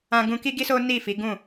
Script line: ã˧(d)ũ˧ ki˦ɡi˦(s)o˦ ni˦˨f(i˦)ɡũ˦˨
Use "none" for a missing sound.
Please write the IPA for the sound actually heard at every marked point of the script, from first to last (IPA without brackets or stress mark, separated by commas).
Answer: ɡ, s, i˨˦